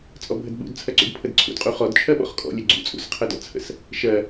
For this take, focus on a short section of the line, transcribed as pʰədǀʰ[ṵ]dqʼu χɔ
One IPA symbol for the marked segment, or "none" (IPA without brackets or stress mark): ṵ